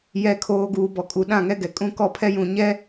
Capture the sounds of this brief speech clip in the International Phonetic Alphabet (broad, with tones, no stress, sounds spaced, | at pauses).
j ɛ˨ kʰ oː˨ ɡ uː˨ b ɔ˨ kʼ u˨ ɗ ã˦˨ ŋ ɛ˦ ɡ ɛ˨ kʼ ũ˦ k ɔ˦ pʰ ɛ˦ j ũ˨ ɲ ɛ˦